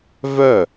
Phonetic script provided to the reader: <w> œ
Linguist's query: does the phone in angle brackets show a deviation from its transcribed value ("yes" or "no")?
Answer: yes